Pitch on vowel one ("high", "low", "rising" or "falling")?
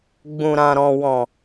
low